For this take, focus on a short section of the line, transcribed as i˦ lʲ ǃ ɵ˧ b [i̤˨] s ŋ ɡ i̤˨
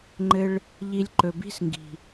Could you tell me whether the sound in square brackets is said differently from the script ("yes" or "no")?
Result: yes